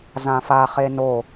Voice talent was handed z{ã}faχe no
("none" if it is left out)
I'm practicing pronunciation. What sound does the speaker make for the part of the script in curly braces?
ã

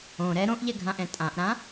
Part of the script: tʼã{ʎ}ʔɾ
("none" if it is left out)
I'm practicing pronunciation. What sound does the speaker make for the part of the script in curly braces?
none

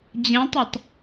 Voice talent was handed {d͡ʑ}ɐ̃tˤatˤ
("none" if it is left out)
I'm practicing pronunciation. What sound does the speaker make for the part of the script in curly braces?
d͡ʑ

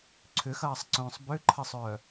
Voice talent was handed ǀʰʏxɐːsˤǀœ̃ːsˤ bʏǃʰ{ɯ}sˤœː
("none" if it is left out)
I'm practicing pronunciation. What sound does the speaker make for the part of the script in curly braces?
ə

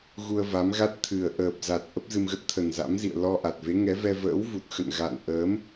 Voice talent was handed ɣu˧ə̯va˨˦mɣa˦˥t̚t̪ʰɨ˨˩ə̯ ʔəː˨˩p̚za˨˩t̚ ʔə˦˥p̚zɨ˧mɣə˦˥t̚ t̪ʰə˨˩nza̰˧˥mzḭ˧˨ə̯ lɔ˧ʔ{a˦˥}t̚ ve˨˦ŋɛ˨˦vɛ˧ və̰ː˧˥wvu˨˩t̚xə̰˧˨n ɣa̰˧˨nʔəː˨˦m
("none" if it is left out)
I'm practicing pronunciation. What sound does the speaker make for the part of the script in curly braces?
a˨˩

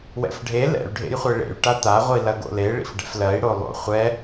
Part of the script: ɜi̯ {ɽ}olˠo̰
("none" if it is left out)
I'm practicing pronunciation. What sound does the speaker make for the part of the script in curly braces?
ɽ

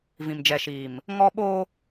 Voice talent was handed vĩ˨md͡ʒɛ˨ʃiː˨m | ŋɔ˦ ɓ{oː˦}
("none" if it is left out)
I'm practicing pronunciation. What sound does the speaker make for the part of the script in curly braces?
oː˦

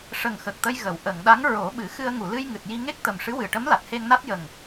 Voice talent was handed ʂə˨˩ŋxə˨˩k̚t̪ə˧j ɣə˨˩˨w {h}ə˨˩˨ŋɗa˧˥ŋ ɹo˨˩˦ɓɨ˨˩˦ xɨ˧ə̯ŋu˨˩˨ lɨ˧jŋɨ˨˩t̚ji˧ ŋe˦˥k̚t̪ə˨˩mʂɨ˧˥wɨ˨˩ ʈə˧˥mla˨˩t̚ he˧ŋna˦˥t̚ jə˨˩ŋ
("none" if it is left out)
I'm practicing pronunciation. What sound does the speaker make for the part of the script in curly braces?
ʔ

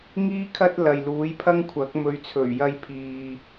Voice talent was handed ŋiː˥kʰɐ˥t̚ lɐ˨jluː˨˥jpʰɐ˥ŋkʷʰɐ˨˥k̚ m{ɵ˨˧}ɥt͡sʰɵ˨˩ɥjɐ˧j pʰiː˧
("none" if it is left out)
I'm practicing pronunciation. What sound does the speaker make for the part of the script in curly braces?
ɵ˨˧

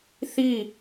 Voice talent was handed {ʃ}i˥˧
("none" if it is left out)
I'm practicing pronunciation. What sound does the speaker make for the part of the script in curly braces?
θ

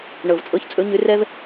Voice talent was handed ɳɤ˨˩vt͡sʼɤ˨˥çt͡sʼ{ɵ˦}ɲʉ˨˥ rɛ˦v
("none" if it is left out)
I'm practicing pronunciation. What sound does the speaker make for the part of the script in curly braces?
ɵ˨˥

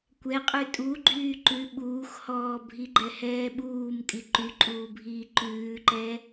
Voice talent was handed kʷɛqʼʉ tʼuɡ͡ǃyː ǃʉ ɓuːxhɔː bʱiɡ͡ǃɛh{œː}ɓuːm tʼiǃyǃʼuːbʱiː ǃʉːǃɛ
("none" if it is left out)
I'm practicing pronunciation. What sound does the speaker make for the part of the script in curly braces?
ɛː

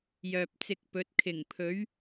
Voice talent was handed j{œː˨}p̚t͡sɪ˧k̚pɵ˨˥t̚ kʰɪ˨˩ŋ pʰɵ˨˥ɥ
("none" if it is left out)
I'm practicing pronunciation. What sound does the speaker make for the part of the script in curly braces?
œː˨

